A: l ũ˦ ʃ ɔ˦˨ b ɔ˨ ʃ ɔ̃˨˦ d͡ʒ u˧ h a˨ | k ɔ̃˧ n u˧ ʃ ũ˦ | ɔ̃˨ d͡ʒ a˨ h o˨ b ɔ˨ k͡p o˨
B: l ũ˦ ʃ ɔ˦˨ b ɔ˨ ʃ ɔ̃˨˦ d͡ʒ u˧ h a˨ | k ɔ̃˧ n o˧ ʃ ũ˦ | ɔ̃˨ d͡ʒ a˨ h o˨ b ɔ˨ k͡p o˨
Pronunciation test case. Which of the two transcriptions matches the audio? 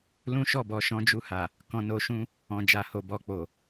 B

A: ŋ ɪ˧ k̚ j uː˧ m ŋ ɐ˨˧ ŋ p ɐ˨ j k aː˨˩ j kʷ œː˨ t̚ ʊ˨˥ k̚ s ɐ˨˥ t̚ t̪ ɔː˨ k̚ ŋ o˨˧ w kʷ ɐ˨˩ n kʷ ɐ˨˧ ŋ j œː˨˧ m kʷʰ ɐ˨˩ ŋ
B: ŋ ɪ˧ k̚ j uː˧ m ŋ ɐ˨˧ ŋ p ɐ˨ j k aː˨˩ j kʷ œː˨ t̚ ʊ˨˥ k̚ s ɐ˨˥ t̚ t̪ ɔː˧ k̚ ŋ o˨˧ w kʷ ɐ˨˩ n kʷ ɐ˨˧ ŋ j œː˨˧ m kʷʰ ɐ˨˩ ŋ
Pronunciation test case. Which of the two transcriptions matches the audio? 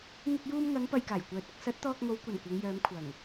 B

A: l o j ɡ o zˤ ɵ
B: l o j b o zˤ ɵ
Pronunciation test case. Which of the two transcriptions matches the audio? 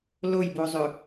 B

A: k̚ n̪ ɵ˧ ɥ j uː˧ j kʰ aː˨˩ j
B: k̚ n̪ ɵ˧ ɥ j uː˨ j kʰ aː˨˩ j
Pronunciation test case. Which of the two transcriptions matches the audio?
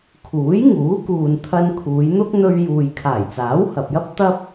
B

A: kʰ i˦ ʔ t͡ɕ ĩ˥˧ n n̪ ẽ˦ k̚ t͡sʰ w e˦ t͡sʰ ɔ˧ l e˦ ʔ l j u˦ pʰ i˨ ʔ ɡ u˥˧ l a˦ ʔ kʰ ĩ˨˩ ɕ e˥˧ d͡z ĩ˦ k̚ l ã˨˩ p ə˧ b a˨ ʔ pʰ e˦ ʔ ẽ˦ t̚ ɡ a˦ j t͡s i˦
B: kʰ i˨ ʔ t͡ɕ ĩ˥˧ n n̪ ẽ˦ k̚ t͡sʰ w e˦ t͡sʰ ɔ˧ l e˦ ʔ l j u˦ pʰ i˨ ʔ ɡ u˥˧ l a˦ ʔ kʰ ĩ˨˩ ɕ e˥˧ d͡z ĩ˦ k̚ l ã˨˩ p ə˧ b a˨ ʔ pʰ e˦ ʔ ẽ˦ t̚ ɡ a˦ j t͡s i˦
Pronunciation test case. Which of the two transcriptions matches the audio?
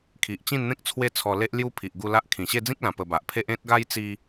B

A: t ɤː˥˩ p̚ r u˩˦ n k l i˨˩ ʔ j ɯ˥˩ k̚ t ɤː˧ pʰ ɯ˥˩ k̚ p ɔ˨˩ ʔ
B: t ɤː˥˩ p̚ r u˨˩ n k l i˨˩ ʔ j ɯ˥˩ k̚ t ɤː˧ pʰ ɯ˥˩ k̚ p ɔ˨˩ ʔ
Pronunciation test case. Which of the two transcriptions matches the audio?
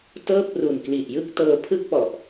B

